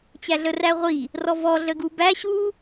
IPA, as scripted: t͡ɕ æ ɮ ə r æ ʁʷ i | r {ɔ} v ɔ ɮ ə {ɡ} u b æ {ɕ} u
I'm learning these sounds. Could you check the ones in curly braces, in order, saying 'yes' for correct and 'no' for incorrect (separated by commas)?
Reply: yes, yes, yes